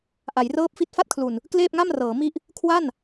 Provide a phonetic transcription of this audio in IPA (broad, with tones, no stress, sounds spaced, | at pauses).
ʔ a˩˦ j r ɤː˦˥ p̚ f i˦˥ t̚ f a˥˩ t̚ kʰ l u˨˩ n | k l eː˥˩ p̚ ŋ a˥˩ m r ɤː˩˦ m i˥˩ ʔ | kʰ w a˥˩ n